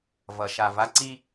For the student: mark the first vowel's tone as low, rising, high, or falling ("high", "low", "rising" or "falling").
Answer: low